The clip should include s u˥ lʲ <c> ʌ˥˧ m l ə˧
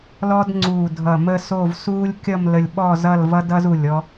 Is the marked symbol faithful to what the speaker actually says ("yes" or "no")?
no